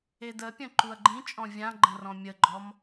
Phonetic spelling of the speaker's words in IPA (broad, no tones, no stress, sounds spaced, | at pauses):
e d ə pʲ ə̃ ǃ u ɐ̯ ɡ͡ǃ ĩ t͡ʃʼ ɔ̃ vʲ ã ɡ͡ǃ ə̃ r ɔ̃ mʲ ə ɡ͡ǃ ɔ m